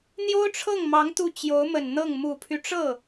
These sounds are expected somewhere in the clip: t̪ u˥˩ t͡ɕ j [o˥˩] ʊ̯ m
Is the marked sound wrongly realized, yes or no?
yes